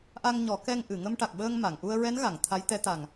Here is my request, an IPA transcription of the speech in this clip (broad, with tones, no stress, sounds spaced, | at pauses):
ʔ a˧ ŋ ɲ ɔ˨˩˦ k ɛ˧ ŋ ʔ ɨ˨˩˨ ŋ ə˧ m ʈ a˨˩ k̚ ɓ əː˧ ŋ m a˨˩˨ ŋ ʔ u˧ ə̯ ɹ ɛ˧˥ n ɣ a˨˩˨ ŋ t̪ʰ a˧˥ j t̪ ɛ˧˥ t̪ a˨˩ ŋ